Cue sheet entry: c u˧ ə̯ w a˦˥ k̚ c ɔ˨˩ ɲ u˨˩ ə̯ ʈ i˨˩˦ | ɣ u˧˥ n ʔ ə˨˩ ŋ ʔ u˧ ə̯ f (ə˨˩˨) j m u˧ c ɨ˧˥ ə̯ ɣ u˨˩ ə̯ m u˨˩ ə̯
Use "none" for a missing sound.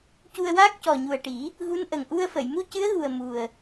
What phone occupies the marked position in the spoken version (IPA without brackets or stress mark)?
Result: ə˨˩˨